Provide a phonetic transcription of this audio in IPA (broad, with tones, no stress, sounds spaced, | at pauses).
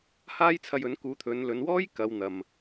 h aː˥ j t͡sʰ ɐ˧ j ɵ˨˥ n k uː˨˥ t̪ʰ ɵ˨˧ n l ɵ˨˧ n w ɔː˥ j k ɐ˨˧ w n̪ ɐ˨ m